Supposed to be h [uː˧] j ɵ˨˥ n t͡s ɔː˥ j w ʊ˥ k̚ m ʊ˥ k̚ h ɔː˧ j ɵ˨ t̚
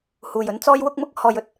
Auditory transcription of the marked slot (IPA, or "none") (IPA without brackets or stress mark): uː˨